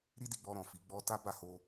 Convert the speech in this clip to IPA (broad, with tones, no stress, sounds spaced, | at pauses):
ɾ i˦ d i˧ ɡ͡b ɔ˧ ɾ ɔ̃˨ f i˨˦ ɡ͡b ɔ˦ t a˦ b a˦˨ h o˧